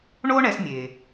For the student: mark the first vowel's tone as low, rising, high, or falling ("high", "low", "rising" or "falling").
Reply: high